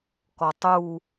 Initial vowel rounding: rounded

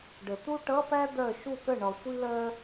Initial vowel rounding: unrounded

